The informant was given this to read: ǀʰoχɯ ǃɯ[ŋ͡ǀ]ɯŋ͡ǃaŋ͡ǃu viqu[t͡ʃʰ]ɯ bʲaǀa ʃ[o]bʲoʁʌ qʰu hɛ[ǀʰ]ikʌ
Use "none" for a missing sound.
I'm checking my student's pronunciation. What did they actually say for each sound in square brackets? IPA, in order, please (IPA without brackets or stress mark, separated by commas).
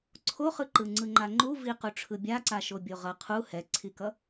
ŋ͡ǀ, ʈ͡ʂʰ, o, ǀʰ